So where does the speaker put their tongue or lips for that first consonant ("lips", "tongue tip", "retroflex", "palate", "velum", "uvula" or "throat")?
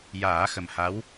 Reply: palate